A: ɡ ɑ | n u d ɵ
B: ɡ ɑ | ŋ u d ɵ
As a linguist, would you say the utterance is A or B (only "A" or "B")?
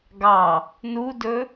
A